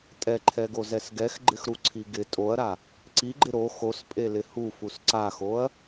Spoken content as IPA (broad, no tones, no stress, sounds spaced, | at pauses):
tʼ ɛ ǃʰ ɛ ɡ o z ɛ s ɡ ɛ x ɡ͡ǃ ɪ x ɾ u ǀʰ i ɡ ɪ tʼ o ɐ̯ ɾ a | ǀ i ɡ͡ǃ ɪ ɾ o x o s pʼ e l ɪ h u f u s ǀ a x o ɐ̯